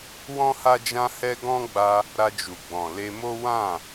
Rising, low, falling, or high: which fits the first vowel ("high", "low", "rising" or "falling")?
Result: high